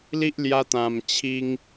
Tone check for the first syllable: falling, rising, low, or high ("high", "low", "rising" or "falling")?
high